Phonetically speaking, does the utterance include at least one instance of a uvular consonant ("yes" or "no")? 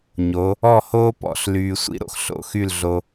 no